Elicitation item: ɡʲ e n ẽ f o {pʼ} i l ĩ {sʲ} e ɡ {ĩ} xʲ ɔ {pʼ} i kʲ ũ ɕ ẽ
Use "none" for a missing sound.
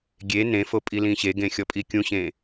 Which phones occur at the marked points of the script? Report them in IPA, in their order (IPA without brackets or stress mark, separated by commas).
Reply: pʼ, ɕ, ẽ, pʼ